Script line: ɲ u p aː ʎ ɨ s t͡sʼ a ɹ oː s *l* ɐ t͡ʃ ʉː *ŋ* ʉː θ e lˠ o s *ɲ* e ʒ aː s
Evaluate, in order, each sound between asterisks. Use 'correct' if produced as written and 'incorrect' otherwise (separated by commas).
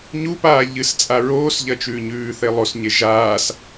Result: incorrect, incorrect, correct